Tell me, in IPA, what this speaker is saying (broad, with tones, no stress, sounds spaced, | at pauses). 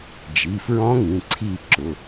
d͡ʒ i˩˧˩ f ɹ ɔ̃˦˥ ŋ ĩ˩˧˩ ǀʰ i˦˨ ǁ ʊ˩˧˩